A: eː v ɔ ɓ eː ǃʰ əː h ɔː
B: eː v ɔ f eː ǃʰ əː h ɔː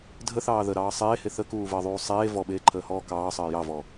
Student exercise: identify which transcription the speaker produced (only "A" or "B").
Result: A